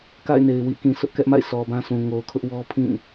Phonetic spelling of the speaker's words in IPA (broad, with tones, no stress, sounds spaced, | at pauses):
k a̰˦˨ ɪ̯ n e˨ ɪ̯ w ḭ˦˨ k ĩ˨ s ʊ˦ ʔ k ɛ˦ ʔ m a̰˦˨ ɪ̯ s ɔ˨ b ã˦ s ũ˨ ŋ o˨ ʊ̯ kʰ ʊ˦ ʔ w ɔ˦ pʰ ĩ˦˨